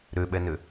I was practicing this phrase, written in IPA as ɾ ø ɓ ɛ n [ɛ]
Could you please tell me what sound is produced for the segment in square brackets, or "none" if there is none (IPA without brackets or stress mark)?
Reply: ø